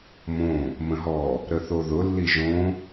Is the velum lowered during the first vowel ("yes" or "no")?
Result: yes